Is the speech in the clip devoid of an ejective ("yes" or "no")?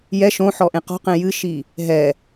yes